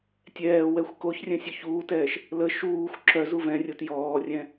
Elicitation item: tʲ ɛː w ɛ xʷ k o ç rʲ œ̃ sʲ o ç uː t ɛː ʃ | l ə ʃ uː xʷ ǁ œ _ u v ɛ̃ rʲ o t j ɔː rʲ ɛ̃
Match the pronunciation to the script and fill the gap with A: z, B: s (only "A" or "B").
A